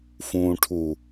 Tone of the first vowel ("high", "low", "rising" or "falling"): low